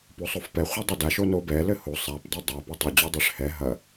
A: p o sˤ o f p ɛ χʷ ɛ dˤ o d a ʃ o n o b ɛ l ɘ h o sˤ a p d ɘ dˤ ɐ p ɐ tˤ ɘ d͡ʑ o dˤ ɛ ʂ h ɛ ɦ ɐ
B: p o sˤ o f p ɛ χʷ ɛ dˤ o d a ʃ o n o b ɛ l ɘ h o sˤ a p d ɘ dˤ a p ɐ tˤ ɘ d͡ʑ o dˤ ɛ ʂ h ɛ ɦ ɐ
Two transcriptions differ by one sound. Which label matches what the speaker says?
B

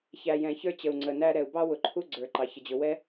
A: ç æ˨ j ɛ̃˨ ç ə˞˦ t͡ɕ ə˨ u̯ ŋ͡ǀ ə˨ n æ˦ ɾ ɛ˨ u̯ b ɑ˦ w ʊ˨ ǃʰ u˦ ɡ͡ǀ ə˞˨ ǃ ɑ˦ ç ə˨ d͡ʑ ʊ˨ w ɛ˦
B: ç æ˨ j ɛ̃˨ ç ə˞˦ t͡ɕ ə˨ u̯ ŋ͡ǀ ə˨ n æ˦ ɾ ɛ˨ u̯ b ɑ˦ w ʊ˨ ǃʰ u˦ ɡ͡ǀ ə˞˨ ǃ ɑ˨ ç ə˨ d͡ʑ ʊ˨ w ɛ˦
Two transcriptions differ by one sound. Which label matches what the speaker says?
B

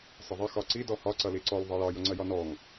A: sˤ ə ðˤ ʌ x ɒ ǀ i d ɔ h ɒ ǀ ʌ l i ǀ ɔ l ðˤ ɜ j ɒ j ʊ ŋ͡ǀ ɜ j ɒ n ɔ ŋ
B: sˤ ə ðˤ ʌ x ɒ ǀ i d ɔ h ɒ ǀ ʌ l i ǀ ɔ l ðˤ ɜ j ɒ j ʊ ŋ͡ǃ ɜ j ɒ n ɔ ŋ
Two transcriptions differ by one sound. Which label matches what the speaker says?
A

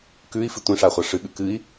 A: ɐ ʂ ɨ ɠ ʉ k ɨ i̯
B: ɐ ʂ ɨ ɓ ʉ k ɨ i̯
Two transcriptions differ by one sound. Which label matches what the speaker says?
A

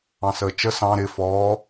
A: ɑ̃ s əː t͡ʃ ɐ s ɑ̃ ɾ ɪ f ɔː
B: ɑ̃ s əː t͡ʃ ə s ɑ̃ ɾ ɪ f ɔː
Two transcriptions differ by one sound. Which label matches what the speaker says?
B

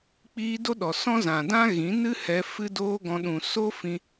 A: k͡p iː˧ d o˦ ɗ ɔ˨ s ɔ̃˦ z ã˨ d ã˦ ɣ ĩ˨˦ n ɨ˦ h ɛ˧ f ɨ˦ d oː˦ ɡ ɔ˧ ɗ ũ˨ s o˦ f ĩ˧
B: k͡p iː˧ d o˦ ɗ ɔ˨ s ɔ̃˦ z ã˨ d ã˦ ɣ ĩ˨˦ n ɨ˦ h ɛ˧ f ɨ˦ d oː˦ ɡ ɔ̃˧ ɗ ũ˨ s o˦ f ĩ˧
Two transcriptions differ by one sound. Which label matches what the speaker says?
B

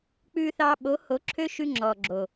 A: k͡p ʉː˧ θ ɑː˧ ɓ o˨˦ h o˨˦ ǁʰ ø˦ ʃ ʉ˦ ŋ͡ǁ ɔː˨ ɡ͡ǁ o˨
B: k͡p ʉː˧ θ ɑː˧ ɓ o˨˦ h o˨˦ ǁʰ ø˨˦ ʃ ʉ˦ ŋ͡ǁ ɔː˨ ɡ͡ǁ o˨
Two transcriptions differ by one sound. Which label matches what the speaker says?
A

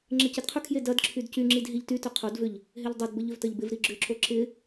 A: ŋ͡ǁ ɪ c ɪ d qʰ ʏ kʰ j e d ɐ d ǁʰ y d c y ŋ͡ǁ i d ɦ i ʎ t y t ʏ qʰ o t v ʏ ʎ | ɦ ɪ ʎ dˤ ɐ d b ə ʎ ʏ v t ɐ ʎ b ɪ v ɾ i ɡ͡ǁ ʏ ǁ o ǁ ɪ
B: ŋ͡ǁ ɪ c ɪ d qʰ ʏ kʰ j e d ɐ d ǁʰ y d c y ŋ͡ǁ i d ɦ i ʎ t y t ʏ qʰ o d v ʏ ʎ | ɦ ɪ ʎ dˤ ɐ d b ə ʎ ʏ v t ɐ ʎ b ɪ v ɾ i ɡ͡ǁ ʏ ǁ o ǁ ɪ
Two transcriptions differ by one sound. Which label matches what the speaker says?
B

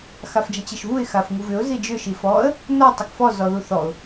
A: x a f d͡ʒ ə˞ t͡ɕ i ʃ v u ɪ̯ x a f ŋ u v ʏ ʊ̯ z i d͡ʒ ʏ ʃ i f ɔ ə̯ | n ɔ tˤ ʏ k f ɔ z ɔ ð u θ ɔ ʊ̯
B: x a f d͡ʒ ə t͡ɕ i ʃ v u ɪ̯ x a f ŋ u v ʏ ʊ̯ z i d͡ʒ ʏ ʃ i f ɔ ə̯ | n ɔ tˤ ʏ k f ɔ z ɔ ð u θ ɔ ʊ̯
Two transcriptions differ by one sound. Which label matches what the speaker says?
B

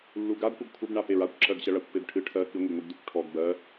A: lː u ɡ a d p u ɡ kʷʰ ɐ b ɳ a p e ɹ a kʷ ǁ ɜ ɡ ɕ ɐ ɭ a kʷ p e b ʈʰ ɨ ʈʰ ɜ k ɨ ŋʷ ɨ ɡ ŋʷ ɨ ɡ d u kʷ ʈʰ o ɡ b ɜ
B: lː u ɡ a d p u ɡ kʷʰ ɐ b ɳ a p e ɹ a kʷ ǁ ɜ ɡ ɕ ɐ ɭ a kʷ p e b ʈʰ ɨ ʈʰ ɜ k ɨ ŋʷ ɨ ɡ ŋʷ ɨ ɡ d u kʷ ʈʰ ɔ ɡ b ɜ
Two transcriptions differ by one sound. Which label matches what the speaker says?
B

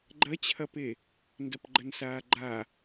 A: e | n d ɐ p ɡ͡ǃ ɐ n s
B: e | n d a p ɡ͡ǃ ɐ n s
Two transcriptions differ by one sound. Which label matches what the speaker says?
A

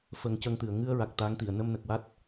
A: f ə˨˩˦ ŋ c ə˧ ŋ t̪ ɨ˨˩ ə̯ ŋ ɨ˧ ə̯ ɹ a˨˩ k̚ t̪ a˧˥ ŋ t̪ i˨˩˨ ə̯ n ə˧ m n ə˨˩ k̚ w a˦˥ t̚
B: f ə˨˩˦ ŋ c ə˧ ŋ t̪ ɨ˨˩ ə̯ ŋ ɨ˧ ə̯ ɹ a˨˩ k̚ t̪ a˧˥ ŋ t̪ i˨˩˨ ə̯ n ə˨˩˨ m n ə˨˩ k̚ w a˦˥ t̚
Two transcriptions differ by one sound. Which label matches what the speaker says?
A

